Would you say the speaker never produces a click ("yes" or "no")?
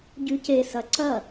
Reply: no